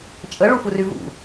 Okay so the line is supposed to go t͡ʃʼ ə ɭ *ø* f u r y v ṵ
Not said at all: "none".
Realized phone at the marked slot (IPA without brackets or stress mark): u